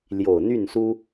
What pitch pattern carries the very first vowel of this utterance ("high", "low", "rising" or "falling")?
low